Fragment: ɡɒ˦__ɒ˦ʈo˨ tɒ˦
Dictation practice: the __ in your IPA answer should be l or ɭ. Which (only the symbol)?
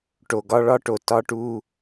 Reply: ɭ